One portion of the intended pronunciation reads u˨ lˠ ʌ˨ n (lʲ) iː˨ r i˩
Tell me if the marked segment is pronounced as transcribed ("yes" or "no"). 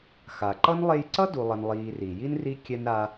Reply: no